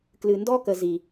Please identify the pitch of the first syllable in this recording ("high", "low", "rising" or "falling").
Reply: low